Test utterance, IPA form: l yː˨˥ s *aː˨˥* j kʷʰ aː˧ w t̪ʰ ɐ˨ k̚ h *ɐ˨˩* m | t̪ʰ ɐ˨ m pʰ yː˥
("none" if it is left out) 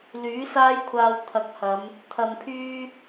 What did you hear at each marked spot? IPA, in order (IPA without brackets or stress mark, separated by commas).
aː˥, ɐ˨˧